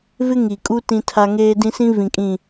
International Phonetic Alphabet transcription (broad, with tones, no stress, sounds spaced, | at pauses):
v ɪ˦ ŋ i˨ kʼ u˦ t ĩ˦ tʰ a˦ ŋ eː˦ d ĩ˦ s ĩ˦ v ĩ˨ kʼ ĩ˨